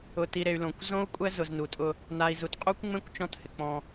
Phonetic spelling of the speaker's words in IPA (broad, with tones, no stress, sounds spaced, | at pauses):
ʊ˨ t i˨ ɾ e˨ y̯ l õ˨ kʷ z õ˦ u̯ kʷʼ ɛ˦ z ʊ˨ z n u˨ tʼ ʊ˦ | n a˨ i̯ z u˨ t qʼ u˦ kʷ ŋ͡m ẽ˦ kʷ t͡ʃ ɔ̃˦ t h ɪ˨ k͡p ɔ̃˦